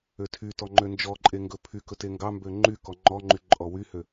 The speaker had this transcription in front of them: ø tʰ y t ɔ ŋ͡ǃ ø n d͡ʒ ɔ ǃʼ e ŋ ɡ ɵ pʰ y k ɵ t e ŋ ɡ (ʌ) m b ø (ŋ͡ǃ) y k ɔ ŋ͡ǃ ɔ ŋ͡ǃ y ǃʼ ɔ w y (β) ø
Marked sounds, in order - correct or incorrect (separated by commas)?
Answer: incorrect, correct, incorrect